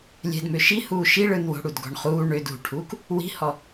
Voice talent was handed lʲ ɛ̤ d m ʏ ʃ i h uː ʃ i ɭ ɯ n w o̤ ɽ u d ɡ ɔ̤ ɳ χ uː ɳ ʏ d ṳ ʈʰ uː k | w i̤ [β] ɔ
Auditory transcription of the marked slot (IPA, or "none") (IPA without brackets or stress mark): h